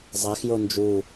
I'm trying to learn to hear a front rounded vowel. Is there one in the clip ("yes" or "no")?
no